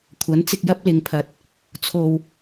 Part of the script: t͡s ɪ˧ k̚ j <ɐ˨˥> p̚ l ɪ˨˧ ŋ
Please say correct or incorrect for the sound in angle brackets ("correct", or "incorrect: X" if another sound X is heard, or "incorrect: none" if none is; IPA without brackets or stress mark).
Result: incorrect: ɐ˥